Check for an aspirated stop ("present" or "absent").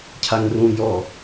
present